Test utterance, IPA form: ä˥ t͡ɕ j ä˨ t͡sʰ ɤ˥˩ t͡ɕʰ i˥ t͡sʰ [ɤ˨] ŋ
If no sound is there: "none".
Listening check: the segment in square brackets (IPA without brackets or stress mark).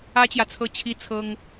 ɤ˥